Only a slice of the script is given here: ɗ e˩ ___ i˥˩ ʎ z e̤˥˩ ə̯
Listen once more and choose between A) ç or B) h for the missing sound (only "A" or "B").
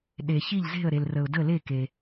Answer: A